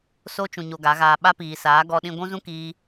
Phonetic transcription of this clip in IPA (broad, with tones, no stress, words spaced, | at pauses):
so˦t͡ʃũ˨ ɲo˧ɡa˨˦ɣaː˧ ɓa˦piː˨saː˨˦ ɡɔ˧ɗĩ˧ ɡʷũ˦zũ˦ kiː˦